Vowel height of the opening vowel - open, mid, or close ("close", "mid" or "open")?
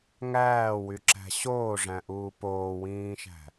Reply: open